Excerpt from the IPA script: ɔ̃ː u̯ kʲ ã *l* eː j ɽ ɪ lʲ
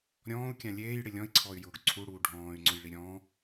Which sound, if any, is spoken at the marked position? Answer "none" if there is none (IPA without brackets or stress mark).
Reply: lʲ